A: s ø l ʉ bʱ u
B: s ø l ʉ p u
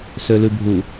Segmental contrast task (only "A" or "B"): A